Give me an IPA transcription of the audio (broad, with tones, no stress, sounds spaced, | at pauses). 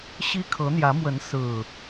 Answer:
ɕ i˦ kʰ ɤ˨˦ n̪ j ä˨˦ m w ə˨˦ n s ɹ̩˨˩